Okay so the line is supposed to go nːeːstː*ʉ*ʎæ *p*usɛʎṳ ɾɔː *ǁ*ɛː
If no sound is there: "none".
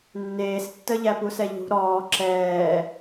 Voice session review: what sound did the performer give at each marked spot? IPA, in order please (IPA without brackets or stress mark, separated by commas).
ə, p, ǁ